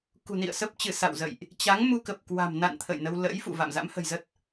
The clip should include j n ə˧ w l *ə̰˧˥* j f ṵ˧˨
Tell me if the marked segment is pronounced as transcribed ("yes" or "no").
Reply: yes